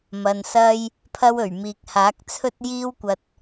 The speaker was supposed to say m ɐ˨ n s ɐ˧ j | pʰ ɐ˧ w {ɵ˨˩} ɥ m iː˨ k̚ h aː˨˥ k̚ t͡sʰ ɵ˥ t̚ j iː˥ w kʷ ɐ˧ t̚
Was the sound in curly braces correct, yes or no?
yes